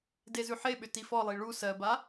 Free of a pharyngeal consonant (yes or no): no